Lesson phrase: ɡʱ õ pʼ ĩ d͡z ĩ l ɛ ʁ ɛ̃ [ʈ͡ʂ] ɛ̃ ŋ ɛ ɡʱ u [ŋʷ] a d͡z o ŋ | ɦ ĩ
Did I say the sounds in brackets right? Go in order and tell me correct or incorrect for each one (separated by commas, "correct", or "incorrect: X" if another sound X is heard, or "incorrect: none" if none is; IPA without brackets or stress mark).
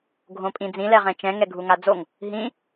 incorrect: t͡ʃ, incorrect: ŋ